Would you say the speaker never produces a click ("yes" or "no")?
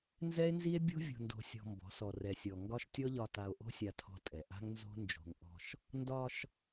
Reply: yes